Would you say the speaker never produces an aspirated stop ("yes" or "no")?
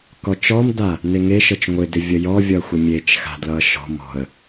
yes